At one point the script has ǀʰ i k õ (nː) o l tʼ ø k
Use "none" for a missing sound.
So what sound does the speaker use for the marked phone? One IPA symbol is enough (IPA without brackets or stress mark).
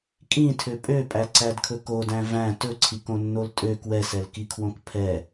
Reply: nː